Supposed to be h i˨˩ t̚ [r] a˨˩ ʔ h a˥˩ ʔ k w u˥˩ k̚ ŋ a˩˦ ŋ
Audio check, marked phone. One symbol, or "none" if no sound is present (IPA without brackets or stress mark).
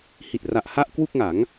r